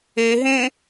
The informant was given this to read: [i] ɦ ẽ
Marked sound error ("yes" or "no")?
yes